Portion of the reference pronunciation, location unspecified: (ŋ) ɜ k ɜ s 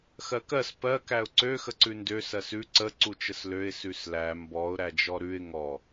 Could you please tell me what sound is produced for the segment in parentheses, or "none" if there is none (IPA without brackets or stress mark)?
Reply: x